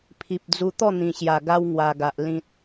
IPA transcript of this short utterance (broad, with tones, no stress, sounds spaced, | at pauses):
pʰ i˨ p̚ d͡z u˧ t̪ ɔ˥˧ n̪ ĩ˨˩ ɕ j a˨˩ ɡ a˦ w ŋ w a˧ ɡ a˨ ʔ l ĩ˨ t̚